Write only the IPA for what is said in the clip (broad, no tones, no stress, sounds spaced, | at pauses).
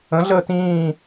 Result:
ə̃ ɮ əː t ĩː